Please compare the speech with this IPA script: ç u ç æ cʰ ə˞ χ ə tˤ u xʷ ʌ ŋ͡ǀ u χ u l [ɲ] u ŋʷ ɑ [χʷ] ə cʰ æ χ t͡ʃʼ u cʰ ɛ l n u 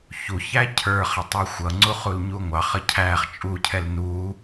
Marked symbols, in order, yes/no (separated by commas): yes, no